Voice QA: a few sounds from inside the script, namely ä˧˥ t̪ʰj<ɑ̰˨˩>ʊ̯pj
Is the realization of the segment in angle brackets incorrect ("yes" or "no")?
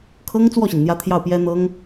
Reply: yes